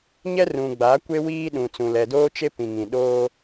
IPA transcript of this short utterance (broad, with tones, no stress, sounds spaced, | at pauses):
ɲ ɛ˦ r ũ˨ ɡ͡b a˨˦ kʷ e˦ w iː˦ ɗ ũ˨ t͡s ũ˨ l ɛ˨ d oː˦ t͡ʃ e˦ p ĩ˨ ŋ ĩ˨ ɗ oː˦